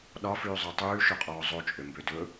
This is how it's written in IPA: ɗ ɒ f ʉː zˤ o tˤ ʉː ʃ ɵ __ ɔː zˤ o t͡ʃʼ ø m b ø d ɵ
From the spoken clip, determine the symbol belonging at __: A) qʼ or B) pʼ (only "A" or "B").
A